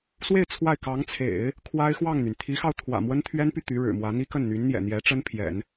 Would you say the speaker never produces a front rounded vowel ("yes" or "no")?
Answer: no